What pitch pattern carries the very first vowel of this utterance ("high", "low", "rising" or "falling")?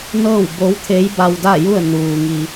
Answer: falling